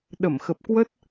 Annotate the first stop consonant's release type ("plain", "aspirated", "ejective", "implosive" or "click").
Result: implosive